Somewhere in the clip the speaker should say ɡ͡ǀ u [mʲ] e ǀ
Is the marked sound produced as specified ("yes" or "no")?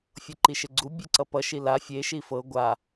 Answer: no